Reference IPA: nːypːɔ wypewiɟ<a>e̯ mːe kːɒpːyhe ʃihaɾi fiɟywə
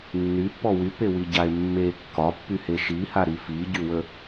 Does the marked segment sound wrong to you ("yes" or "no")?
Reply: no